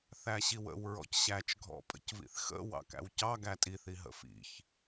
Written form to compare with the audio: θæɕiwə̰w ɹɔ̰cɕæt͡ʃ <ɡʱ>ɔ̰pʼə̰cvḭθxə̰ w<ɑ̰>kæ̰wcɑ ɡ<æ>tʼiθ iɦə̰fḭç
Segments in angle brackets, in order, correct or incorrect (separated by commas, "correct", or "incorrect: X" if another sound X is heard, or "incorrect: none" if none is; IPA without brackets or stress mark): correct, correct, correct